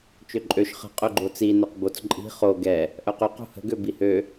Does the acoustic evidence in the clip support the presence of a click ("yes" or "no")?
yes